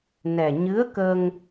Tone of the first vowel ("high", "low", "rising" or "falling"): low